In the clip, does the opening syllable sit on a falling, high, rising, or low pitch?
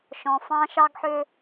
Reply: low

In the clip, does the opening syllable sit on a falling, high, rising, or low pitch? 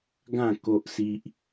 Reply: falling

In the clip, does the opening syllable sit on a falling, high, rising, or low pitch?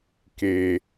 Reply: low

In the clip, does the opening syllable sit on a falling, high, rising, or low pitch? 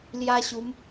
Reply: high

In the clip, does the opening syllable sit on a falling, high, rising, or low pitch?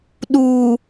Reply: low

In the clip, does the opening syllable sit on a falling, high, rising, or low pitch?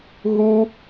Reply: high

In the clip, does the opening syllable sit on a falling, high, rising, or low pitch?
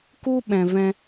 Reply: high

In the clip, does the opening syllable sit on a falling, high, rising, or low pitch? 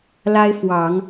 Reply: high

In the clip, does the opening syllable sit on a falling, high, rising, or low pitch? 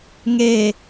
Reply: low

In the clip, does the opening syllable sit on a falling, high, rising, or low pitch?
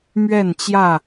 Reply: falling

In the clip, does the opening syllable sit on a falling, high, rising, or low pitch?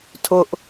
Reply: high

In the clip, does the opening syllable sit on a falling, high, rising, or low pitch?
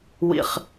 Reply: low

